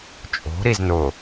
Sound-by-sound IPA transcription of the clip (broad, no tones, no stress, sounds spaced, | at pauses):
t͡ʃʼ o̤ ɾ i z n ʊ